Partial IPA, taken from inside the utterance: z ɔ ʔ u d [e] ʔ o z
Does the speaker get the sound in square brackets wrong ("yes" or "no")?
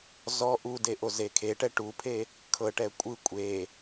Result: no